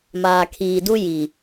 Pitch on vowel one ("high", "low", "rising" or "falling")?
low